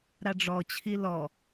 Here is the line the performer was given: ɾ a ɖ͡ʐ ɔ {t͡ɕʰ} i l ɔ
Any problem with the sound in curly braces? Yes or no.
no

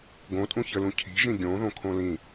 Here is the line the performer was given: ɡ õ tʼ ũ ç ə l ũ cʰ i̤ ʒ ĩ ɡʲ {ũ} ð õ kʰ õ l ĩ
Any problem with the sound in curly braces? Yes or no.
yes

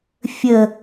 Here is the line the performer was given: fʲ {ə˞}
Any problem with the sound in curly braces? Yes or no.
yes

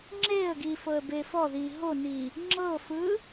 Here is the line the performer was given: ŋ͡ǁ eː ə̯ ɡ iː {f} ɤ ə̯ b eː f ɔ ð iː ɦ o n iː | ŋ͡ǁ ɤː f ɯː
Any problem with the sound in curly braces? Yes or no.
no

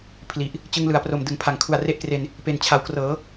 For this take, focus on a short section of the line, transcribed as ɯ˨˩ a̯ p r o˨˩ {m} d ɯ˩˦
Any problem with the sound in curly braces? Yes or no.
no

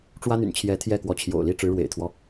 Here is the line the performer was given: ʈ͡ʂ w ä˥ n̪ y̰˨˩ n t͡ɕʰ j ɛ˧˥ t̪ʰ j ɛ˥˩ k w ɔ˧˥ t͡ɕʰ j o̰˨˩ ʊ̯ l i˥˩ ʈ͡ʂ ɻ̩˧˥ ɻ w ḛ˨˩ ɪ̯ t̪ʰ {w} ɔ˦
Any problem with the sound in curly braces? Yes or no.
no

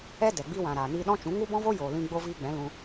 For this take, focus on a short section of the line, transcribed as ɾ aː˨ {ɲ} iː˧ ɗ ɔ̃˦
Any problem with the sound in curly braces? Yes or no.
yes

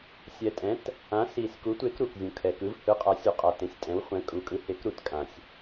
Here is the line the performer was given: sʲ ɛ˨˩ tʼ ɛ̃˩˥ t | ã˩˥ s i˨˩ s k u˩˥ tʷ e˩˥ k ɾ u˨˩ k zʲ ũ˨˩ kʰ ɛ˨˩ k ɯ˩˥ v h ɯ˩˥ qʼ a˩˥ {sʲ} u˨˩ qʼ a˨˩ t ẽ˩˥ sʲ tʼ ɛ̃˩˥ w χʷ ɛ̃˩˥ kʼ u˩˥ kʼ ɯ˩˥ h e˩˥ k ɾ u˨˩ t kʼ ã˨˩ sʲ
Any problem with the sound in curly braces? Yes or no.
no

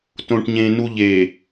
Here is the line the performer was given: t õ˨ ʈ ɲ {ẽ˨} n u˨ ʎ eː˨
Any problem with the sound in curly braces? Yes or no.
no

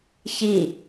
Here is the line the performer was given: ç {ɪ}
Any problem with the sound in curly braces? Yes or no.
yes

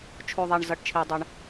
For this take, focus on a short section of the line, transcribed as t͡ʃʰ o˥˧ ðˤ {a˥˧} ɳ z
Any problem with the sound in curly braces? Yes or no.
no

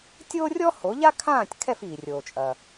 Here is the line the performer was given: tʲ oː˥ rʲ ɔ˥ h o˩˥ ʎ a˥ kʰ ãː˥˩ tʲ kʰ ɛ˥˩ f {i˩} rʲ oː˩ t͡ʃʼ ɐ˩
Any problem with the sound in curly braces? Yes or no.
yes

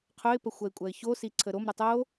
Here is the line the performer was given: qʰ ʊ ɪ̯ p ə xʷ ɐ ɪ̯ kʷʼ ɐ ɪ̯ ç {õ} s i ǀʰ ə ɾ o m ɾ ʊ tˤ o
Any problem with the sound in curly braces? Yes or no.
yes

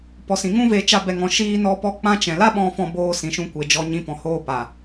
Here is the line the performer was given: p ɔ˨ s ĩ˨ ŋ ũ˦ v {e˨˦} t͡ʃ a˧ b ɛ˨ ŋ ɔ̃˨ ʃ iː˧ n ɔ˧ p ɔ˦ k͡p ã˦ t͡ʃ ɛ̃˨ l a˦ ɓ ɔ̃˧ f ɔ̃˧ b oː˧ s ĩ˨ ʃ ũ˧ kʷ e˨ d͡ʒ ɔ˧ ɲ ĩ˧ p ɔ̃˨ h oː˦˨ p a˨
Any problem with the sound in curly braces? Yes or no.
no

